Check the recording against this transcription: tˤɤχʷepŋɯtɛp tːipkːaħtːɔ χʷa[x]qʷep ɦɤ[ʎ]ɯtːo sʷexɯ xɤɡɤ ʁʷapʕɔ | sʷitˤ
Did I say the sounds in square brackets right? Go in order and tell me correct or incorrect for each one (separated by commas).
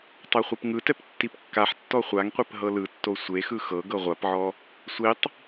incorrect, incorrect